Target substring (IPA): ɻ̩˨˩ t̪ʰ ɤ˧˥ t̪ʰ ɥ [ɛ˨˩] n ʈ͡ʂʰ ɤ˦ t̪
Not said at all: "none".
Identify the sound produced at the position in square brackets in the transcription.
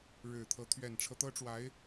ɛ˨˩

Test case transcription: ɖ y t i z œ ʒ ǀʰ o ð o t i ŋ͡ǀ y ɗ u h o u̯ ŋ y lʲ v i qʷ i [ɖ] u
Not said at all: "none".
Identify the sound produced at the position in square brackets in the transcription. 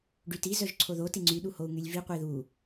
ð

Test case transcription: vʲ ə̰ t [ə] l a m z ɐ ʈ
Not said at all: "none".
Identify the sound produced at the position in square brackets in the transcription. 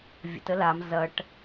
ə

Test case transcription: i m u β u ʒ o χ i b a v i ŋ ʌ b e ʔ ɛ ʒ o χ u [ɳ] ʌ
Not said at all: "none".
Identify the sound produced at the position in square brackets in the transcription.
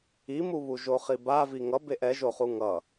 ŋ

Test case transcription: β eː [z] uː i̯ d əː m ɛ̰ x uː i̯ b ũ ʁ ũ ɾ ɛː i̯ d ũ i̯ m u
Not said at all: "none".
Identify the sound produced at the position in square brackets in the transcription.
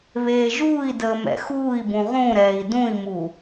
ʒ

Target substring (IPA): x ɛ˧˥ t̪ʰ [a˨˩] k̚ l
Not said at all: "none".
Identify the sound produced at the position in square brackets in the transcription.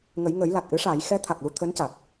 a˨˩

